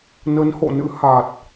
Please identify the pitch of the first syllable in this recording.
rising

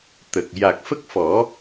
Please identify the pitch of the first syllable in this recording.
low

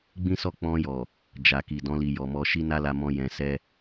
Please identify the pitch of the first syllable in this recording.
high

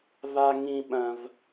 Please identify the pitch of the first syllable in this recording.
high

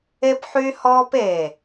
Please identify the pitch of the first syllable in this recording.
high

